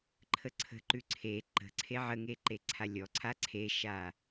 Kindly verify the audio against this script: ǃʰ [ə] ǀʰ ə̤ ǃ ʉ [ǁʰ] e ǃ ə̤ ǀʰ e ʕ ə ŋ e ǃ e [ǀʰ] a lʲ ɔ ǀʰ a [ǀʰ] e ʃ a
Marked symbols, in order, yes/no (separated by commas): yes, no, yes, yes